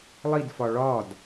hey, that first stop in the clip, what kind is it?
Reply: plain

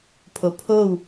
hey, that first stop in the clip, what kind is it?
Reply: aspirated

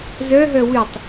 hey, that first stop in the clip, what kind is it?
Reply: plain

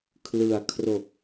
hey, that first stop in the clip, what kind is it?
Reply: aspirated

